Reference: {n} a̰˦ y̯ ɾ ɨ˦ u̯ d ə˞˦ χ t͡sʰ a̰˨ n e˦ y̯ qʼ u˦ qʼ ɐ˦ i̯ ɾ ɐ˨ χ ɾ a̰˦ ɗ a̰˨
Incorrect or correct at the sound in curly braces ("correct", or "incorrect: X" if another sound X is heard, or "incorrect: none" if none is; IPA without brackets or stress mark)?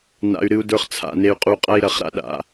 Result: correct